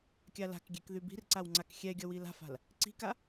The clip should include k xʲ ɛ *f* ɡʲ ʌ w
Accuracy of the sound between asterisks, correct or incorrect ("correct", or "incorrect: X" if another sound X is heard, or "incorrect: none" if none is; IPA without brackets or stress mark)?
incorrect: none